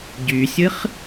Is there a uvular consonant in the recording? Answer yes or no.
yes